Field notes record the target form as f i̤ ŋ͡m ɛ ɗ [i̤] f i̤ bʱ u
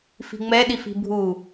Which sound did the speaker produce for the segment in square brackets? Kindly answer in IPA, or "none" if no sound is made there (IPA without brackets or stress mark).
i